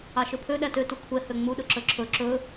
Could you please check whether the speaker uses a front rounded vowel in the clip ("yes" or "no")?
yes